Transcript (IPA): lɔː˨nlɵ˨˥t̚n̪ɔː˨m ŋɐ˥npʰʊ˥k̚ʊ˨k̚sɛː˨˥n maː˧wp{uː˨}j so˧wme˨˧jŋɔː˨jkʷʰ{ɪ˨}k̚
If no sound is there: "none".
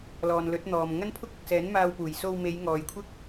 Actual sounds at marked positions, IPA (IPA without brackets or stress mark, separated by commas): uː˨˩, ɪ˥